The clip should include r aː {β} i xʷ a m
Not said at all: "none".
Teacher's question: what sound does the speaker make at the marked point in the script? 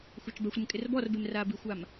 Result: b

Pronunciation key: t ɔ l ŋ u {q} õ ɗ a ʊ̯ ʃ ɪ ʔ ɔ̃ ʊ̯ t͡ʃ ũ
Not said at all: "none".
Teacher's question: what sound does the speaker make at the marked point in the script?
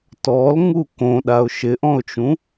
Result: k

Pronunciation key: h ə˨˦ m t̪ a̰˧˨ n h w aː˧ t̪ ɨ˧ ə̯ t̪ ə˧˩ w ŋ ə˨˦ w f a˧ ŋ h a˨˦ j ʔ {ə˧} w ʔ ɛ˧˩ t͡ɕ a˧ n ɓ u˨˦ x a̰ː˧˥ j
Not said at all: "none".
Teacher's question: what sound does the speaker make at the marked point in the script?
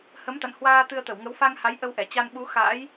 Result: ə˧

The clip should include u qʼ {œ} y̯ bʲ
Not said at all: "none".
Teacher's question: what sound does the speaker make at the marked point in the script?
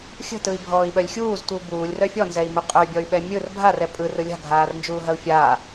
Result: œ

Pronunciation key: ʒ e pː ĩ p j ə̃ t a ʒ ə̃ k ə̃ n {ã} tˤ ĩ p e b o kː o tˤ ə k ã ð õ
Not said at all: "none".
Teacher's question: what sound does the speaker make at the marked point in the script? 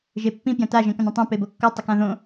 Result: ə̃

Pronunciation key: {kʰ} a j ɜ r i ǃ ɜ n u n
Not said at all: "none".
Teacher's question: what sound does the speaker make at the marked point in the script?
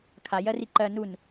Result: kʰ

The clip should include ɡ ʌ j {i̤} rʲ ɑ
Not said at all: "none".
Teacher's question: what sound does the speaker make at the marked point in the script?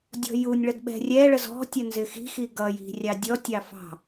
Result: i̤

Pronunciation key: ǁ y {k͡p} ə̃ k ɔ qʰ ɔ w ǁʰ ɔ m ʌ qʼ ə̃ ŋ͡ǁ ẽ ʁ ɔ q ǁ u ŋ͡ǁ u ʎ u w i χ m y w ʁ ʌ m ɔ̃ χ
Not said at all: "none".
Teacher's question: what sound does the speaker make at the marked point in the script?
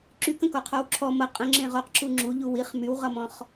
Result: k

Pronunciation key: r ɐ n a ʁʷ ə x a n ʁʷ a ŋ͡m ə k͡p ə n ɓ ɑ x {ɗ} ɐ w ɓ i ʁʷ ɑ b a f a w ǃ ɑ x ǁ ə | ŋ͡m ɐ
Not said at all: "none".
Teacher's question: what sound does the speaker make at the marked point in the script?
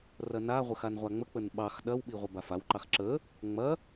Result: ɗ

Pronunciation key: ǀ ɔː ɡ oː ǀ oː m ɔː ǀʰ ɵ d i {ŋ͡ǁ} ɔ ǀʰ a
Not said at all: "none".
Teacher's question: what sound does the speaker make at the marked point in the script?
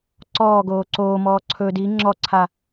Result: ŋ͡ǁ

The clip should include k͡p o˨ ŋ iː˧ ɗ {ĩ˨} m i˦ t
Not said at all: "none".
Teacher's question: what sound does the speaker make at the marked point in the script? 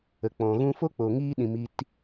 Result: ĩ˨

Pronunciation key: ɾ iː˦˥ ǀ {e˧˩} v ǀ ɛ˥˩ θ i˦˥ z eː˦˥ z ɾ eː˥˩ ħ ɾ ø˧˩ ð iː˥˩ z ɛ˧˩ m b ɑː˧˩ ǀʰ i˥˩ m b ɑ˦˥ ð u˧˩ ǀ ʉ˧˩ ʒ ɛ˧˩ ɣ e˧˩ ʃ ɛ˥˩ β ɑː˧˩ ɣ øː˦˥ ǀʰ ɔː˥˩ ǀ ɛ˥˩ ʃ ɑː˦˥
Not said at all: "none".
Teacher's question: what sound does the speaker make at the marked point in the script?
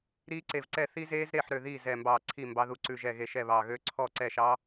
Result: e˧˩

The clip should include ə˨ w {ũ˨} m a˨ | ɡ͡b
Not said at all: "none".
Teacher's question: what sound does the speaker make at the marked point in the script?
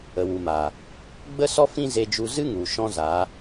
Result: u˨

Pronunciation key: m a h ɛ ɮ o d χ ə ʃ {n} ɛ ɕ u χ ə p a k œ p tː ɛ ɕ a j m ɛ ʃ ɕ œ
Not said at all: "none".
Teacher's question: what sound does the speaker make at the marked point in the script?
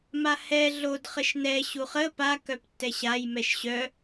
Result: n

